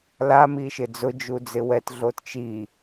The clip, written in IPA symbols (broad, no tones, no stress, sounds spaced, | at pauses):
l a m i ʃ ɪ d͡z ʊ d͡ʒ u d͡z ɪ w ɛ t ɮ o t t͡ʃ i